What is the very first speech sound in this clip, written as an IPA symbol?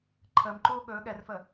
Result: ǃʰ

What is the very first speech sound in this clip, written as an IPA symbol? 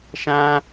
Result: ʃ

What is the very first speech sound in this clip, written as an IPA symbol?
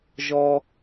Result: ʒ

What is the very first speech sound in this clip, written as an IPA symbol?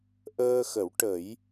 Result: ʔ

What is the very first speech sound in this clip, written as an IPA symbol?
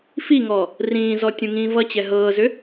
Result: f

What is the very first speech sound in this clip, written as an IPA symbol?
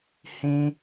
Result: h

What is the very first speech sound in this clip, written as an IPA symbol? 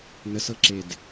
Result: n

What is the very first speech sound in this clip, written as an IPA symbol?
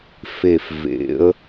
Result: f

